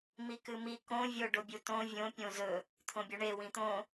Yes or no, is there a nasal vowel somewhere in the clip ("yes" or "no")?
yes